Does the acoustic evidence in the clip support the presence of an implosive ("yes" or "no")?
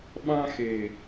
yes